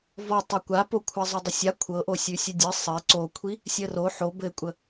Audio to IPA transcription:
v ɔ tˤ ɘ kʷ a p o kʷʰ a zˤ o dˤ ə sʲ a kʷʰ ɤ ʔ o sʲ ʉ sʲ ʉ dʲ ɘ sˤ ɘ ǀ o kʷʰ i | sʲ ə r o ħ o b ɘ kʷʼ ə

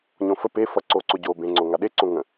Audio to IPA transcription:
ɲ õ f ə p e f ʌ ǀ oː ǀ o ɟ oː b ẽ ŋ͡ǀ o ŋ a ɗ e ǀ õ ŋ ə̃

